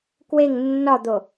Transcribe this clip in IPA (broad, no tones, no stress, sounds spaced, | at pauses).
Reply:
k w e ŋ nː ɒ d̪ o